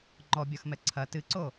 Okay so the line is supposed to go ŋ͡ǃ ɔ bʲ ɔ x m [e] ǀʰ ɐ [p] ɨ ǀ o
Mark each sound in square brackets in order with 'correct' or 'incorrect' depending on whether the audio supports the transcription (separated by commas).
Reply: incorrect, incorrect